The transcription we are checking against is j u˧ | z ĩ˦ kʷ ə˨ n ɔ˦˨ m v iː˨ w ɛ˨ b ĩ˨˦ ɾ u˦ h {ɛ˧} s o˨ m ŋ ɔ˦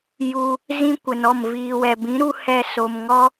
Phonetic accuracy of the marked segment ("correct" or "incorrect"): correct